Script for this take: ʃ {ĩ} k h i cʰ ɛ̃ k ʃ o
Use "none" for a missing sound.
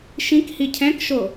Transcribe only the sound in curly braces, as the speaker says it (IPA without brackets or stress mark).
ĩ